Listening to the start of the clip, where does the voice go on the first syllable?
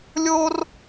high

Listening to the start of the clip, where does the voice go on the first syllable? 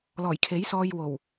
low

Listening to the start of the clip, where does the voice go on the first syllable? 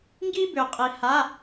high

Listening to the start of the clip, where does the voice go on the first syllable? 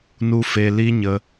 high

